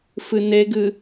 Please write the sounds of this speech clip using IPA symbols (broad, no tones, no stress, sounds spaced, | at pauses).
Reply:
f ɨ n e ɡ ɨ